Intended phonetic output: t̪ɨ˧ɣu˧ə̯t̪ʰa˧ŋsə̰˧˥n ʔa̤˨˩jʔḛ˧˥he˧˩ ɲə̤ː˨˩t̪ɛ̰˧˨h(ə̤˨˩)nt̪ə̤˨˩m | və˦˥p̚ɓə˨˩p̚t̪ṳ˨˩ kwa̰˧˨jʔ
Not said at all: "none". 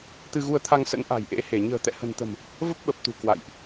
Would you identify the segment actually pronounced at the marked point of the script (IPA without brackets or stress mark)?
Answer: ə̤˨˩